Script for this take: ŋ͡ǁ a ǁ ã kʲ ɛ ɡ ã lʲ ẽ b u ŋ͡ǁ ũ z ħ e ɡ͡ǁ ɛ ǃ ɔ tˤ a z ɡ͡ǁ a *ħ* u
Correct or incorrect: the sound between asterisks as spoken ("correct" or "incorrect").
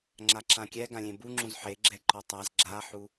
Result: correct